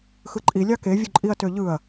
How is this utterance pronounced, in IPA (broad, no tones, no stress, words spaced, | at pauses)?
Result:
xɯǃʼi lʲɑke vʲuǃʼiɐ̯ tøʎɯɐ̯